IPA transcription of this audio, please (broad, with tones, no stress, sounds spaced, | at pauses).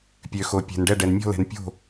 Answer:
pʲ ø˩ x o˩ pʲ ɛ̤˩ n ɖ ɛ˥˩ ɖ ɛ˩ n mʲ ɔ̤˥˩ l ɛ̤˩ n pʲ o̤˥˩